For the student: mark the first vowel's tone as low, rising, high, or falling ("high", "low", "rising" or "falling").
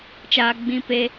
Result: high